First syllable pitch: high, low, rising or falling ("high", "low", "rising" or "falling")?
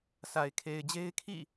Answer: low